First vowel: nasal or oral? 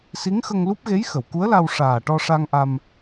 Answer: oral